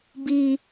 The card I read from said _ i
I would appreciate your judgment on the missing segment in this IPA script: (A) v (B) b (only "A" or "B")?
B